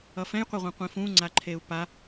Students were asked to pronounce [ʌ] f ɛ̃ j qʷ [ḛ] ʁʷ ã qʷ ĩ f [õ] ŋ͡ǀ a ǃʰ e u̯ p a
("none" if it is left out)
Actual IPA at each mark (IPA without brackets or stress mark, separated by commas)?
ʌ, e, ũ